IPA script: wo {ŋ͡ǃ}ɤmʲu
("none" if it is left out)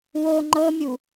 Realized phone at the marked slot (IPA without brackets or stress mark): ŋ͡ǃ